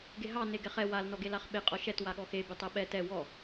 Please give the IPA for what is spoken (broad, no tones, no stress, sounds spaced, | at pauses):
ɡ e ɦ ɑ n e ɡ ɛ χ ɛ w a l n ɔ ɡ e l a χ ɓ e qʼ ɔ ʃ ɛ t w a ɠ ɔ x e b e tˤ ɛ ɓ ɛ t ɛ w ɔ